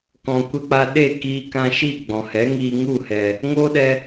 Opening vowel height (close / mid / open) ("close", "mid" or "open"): mid